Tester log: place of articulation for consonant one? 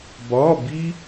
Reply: labial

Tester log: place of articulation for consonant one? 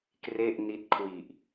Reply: velar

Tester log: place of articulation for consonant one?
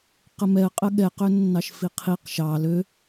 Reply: uvular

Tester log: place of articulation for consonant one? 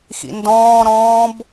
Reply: velar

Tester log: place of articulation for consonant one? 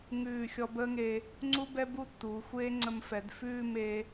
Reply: velar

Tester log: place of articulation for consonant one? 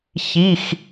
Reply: palatal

